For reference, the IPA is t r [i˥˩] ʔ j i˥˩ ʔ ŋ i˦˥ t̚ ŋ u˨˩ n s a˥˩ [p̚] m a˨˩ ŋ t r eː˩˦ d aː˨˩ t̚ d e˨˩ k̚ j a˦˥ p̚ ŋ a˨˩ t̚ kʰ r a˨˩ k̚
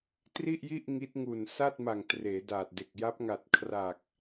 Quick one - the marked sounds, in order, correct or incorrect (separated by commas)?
correct, incorrect